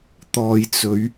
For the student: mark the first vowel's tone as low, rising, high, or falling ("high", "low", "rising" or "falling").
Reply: low